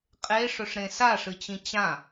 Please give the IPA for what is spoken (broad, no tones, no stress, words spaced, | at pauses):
qʼeʂɵʂɾẽ saʂɨt͡ɕĩ t͡ɕã